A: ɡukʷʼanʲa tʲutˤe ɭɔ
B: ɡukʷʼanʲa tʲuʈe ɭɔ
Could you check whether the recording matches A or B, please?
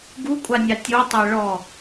A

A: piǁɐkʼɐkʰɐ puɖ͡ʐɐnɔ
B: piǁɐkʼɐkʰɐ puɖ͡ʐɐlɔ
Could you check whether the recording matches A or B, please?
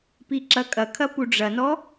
A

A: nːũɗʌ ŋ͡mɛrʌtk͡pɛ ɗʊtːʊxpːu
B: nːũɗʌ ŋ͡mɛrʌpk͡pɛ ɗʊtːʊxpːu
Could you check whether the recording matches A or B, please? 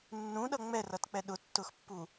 A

